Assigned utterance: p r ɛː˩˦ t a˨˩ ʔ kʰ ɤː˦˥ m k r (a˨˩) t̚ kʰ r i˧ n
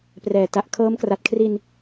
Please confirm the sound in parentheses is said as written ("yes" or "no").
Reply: yes